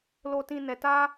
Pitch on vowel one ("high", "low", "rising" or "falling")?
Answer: low